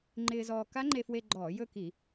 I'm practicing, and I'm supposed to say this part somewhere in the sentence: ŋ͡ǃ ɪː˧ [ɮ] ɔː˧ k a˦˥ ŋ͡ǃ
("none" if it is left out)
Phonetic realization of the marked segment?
z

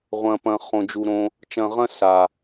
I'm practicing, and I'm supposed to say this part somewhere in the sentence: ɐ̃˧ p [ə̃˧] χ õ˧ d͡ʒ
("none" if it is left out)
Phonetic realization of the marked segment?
ɐ̃˧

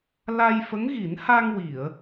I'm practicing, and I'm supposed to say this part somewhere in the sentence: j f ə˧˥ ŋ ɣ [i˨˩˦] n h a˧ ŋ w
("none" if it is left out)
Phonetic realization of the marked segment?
i˨˩˦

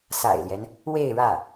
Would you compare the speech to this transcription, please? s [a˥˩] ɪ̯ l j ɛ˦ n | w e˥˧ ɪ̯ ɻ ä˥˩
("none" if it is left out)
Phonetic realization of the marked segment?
a̰˨˩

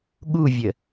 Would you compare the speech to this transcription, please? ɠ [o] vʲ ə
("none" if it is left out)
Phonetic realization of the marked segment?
u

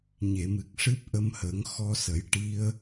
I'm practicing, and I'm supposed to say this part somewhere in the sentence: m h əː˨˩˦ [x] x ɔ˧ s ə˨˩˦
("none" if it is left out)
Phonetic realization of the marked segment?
ŋ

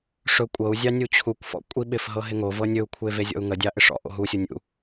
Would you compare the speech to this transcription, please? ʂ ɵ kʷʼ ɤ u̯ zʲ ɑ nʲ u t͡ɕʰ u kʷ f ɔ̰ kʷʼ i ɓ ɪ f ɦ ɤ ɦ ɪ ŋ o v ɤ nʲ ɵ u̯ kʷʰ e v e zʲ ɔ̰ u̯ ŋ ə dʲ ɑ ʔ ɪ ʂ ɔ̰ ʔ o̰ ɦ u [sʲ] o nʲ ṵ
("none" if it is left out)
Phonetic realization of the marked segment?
sʲ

